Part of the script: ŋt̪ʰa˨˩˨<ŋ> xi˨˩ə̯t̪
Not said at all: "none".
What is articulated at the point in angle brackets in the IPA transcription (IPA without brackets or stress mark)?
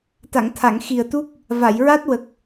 ŋ